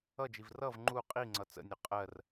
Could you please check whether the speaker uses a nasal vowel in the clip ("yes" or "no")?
no